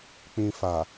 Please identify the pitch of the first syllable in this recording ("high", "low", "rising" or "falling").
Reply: low